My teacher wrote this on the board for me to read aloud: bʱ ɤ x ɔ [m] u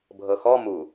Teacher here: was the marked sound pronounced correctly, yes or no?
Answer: yes